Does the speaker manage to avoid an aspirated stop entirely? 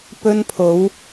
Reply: no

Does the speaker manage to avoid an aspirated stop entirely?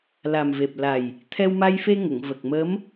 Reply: no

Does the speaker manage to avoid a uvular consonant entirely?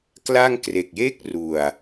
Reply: yes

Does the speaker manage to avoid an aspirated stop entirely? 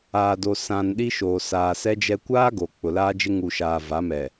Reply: yes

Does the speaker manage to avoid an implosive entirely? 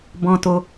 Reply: yes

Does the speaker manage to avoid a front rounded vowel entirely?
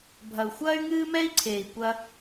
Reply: no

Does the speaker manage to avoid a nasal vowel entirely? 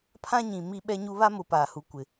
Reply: no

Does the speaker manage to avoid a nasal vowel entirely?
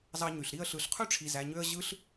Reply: yes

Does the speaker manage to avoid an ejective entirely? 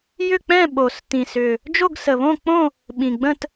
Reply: yes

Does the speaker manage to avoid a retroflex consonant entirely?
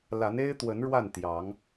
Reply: no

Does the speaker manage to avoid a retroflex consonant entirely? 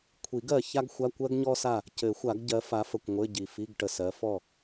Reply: no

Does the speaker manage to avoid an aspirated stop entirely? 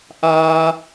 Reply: yes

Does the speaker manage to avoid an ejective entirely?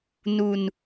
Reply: yes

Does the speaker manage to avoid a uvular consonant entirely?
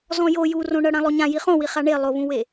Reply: no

